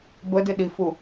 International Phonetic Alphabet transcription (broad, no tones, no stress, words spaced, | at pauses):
bədɪɗifu